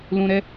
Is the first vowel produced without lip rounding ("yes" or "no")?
no